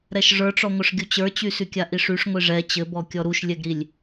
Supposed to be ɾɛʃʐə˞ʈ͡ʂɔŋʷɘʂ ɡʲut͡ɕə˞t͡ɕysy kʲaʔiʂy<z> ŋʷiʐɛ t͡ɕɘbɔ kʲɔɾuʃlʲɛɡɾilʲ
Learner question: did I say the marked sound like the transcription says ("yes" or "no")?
no